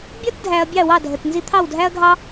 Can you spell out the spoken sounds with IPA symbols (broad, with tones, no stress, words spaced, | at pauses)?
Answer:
bʲʌ˥t dʱæ˧ɐ̯bʲɑ˥˩wɑ˥˩ dʱə˩t nzi˧t̪ʰɑ˥˩wdʱæ˥ɐ̯ɡʱɑ˥